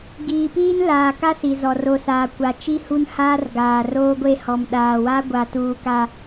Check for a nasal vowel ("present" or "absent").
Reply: absent